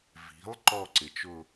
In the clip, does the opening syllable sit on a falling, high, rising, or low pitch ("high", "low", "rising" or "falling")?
rising